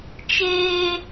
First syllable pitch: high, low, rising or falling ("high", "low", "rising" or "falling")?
high